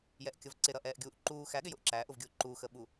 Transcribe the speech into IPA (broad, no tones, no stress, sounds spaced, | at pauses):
j ɛ ʔ kʲ ʌ v ǀ ɪ ɾ ʌ ʔ ɛː ʔ ɡʲ uː ʔ ǃ uː x æ ɠ ɪ j ʊ ʔ ǁ æ ʔ ʊ v ɡʲ ʊː ǃ u x ə ɓ u